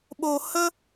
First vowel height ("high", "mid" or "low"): mid